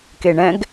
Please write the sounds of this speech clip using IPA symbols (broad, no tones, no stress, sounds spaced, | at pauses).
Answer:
k e ɳ ɛ̃ ɡ